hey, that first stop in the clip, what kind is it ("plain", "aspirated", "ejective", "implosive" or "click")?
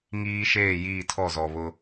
aspirated